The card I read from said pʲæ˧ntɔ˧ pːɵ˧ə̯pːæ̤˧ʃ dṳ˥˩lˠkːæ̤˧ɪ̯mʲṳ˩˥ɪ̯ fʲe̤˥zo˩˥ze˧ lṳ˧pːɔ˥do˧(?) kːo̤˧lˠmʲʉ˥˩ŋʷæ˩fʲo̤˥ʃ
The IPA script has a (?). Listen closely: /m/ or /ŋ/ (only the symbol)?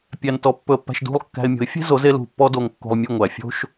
ŋ